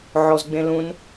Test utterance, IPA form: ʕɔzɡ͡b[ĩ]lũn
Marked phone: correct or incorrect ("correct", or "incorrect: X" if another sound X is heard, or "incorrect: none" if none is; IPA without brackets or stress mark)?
incorrect: ẽ